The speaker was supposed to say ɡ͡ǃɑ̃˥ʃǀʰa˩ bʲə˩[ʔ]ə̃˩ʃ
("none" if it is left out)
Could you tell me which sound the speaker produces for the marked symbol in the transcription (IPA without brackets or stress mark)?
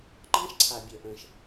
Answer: ʔ